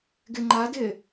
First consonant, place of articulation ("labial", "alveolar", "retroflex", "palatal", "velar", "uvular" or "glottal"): velar